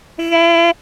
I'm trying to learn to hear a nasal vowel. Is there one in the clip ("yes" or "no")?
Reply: no